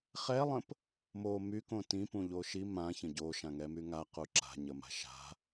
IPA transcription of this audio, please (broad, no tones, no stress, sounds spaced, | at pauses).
χ ɛ lˠ ə̃ p | m o m y k õ t ĩ p ũ ʎ o ʃ i m ã ç ə̃ ɟ o ʃ ã ŋ ɛ m y ŋ a q u ǁ a̤ ɲ ə m a̤ ʃ a̤